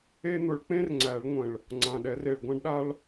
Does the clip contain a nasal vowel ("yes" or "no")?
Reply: yes